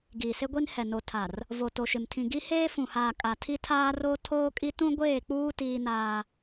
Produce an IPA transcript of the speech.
ɡ iː˨ s e˦ ɡʷ i˦ n h ɛ˨ n o˨ tʰ a˨ r | v o˨ t o˨ ʃ ɪ˨ m tʰ ĩ˨ ɡ i˦ h eː˦ f ũ˨ h aː˨ kʼ a˨ tʰ i˦ tʰ aː˦ r o˦ tʰ oː˦ kʼ i˦ t ũ˦ ɡʷ eː˦˨ k͡p uː˦ t iː˦ n aː˦

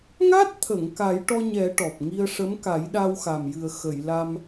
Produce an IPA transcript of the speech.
ŋ a˦˥ t̚ t̪ʰ ə˨˩˨ ŋ k a˨˩˦ j ʈ ɔ˧ ɲ ɛ˨˩˦ ʈ ɔ˨˩ p̚ ŋ i˧ ə̯ ʂ ə˧˥ m k a˨˩˦ j ɗ a˧ w x a˨˩ m j ɨ˨˩ ə̯ x ə˨˩˨ j l a˧ m

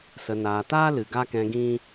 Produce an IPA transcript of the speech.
s ə˨ n aː˨ t aː˦ l ɨ˨ ɡ a˦ k ɛ̃˧ ɡ ĩ˦

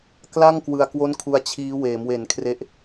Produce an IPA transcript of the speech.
k l a˥˩ ŋ k w ɯ˧ a̯ k w o˥˩ n kʰ u˧ a̯ t͡ɕʰ iː˦˥ w eː˩˦ m w e˨˩ n kʰ r e˦˥ ʔ

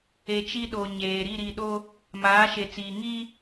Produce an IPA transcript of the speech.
e˨ t͡ʃ i˦ ɗ o˨ ɲ eː˨ ɾ i˦˨ ɾ i˨ ɗ o˦ | m aː˨˦ ʃ e˨ t͡s iː˨ ŋ i˦

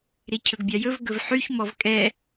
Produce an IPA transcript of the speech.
ɾ i cʰ ɵ ɡ bʲ ɑ j ɵ v ɡ ɵ v ħ y ç m ɔ v kʼ ɛ

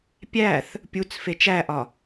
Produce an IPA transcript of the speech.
pʲ æ θ | pʲ u t͡s f e t͡ʃ æ ʔ ɒ

